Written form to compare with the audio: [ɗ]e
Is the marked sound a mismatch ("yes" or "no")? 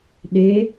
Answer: no